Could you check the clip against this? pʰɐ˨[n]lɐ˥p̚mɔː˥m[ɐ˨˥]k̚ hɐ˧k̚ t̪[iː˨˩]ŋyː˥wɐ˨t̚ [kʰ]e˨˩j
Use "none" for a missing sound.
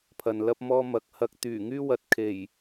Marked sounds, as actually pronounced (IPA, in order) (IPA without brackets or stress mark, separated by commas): n, ɐ˨˥, yː˨˩, kʰ